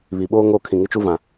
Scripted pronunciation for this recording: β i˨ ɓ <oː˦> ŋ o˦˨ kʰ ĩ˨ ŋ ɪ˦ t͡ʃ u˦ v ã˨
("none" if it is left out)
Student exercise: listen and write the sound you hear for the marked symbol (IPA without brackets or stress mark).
oː˦